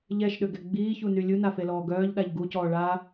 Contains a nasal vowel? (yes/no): no